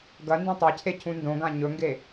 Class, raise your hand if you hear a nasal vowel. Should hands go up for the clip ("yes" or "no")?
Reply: yes